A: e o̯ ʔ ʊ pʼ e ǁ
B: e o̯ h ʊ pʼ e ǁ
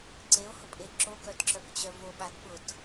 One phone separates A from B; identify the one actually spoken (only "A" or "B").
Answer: B